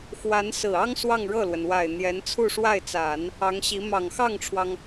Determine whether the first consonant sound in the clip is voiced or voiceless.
voiceless